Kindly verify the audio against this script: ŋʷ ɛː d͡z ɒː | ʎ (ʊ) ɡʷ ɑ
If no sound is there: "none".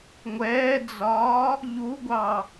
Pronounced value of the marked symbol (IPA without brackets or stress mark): u